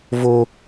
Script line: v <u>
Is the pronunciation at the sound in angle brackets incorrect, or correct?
incorrect